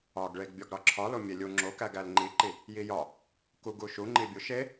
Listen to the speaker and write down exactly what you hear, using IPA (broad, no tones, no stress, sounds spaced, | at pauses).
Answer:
ɒ ɡ ɭ e ɡ bʲ ɒ ɡ ɾ ɒ ǁʰ ɒ l o mʲ e lʲ u ŋ͡ǁ o k æ ɡ æ l ŋ͡ǃ i ǃ i | j i j ɒ | k u ɡ u ʃ u ŋ͡ǃ i bʲ u ʃ e